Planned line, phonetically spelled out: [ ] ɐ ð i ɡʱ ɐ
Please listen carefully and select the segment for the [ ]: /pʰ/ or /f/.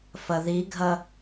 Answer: f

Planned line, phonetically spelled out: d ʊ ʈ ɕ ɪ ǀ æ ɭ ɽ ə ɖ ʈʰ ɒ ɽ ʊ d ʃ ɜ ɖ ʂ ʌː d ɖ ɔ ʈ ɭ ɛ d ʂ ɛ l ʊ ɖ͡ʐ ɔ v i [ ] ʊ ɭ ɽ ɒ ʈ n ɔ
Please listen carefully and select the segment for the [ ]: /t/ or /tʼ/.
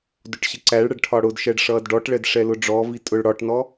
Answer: tʼ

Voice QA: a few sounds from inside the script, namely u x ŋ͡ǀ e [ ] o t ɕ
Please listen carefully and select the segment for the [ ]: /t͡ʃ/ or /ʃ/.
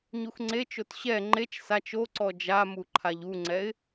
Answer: t͡ʃ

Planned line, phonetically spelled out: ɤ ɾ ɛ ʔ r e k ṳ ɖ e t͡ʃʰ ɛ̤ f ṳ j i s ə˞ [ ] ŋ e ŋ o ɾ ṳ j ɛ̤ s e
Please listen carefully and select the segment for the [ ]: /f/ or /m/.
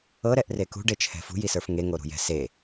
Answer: f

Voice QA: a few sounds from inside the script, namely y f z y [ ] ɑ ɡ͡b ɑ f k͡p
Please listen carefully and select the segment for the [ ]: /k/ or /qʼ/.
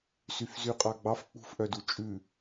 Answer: qʼ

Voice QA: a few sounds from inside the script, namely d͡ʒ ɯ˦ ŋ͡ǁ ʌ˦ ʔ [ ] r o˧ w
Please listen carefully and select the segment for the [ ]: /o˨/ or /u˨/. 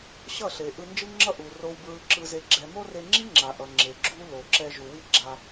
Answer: u˨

